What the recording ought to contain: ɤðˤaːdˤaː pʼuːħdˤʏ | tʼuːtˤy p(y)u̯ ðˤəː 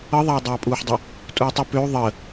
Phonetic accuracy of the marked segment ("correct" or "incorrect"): incorrect